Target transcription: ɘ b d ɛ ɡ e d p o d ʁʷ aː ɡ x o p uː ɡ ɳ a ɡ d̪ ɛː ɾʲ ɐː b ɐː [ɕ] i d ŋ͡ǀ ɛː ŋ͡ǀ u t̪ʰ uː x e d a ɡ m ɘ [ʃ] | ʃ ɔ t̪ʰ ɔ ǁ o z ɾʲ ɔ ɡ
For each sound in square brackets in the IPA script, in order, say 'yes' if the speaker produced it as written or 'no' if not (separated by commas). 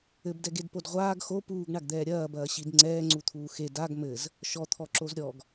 yes, no